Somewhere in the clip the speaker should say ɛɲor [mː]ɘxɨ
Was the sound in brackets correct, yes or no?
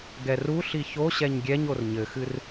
no